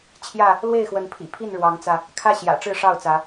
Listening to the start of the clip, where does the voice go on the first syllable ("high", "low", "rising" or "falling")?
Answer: falling